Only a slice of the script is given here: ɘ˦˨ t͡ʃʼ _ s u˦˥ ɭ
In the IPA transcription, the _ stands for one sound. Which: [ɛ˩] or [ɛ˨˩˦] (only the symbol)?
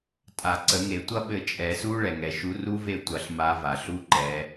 ɛ˨˩˦